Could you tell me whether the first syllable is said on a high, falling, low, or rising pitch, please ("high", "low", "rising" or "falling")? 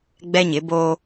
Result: high